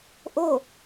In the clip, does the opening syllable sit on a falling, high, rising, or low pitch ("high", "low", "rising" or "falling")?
falling